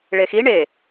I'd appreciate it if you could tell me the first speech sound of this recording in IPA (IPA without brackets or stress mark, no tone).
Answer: ɭ